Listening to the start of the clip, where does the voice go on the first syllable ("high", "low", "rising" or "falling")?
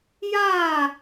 falling